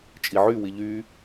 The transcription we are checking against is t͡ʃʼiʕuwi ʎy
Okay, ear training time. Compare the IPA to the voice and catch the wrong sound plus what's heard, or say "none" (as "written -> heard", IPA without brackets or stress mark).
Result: u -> y